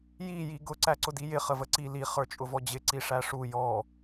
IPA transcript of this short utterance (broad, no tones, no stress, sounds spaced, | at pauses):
j i j i ɡ ʊ ǀ æ ǀ ʊ d i j ɪ χ ə v ə ǀ i l i χ ə˞ t͡ʃʼ ʊ v ɔ d͡ʑ ɪ ǀ i ʂ æ ʂ u j ɔ